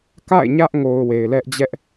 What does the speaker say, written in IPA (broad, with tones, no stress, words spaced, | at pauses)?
ka̰˦˨ɪ̯ɲä˦ʔŋo˨ʊ̯ we˨ɪ̯lɛ˦ʔ d͡ʑɛ˦ʔ